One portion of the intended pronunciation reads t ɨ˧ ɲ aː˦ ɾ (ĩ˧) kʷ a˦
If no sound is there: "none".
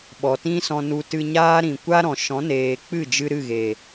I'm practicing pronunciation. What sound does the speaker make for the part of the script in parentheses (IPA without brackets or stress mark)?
ĩ˨